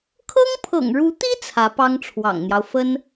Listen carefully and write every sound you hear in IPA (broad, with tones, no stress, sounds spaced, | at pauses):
kʰ ɤ˥ ŋ pʰ ɤ̰˨˩ ŋ ɻ u˧˥ t̪ i˥ t͡sʰ ä˧˥ p ɑ˥ ŋ ʈ͡ʂʰ w ɑ̰˨˩ ŋ n̪ j ɑ˦ ʊ̯ f ə˥ n